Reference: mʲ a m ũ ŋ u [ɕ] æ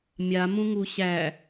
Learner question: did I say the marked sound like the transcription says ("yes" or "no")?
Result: yes